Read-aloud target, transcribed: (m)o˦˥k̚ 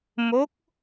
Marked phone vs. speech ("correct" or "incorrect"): correct